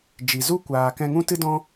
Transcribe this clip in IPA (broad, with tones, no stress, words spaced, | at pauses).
d͡ʒi˨zu˦kʷaː˨ kɛ̃˧ŋũ˦tɨ˦dɔ̃˦